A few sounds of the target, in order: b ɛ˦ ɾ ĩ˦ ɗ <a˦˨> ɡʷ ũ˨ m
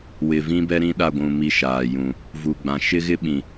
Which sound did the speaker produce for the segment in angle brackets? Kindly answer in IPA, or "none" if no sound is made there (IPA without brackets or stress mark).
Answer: a˦˨